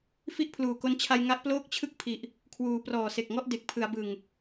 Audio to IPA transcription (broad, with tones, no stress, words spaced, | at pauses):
fi˥˩ʔpʰluː˨˩ko˦˥n t͡ɕʰa˧jŋa˦˥ʔploː˥˩k̚ t͡ɕʰɯ˥˩k̚pʰi˨˩ʔ | kʰwuː˩˦prɔː˨˩se˨˩k̚ŋɔ˥˩ʔ de˨˩k̚pʰɯ˩˦a̯bɯ˨˩ŋ